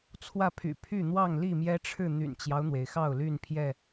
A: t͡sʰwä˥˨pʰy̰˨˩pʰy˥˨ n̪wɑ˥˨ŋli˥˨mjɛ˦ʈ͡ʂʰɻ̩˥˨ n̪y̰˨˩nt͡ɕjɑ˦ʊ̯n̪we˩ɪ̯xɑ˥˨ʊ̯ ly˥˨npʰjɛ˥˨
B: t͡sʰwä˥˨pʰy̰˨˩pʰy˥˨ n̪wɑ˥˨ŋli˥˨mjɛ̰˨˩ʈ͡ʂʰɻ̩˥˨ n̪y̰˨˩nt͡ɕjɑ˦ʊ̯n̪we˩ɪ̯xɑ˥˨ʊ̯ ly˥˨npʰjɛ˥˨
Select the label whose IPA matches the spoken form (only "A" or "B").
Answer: A